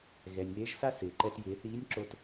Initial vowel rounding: unrounded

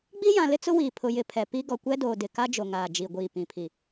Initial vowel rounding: unrounded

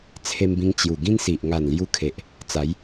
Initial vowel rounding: unrounded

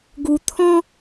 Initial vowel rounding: rounded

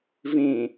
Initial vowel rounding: unrounded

